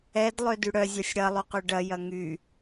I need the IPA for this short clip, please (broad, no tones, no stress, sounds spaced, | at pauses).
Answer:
ɛ d lˠ ø d y ɽ œ zʲ ɐ sʲ ɽ ɐ lˠ y q ø ɖ ɐ j ɐ ŋ y